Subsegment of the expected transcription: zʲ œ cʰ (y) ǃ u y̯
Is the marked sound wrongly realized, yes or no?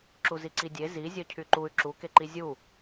no